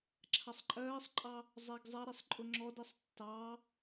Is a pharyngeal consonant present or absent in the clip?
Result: absent